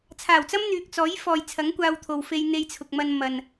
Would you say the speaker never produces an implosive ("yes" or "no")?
yes